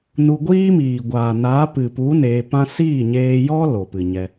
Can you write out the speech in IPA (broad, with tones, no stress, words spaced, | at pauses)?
nu˧ɡʷiː˦miː˨ ɡʷaː˨naː˨˦pɨ˨pu˨˦ neː˧pã˦ siː˦˨ɲeː˧jɔ˦ lo˨pɨ˨ɲɛ˧